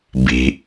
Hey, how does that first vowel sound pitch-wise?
low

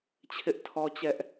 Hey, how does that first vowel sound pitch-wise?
high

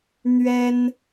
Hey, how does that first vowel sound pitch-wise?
high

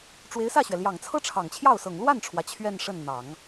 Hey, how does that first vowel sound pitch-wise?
rising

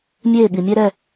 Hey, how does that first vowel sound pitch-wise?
falling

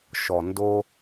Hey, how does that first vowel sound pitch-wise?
low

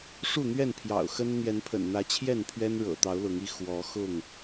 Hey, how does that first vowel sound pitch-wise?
falling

